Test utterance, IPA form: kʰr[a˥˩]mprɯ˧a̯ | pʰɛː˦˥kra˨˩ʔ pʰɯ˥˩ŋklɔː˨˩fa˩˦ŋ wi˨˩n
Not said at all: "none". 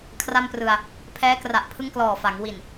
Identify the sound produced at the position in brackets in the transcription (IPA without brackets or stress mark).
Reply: a˥˩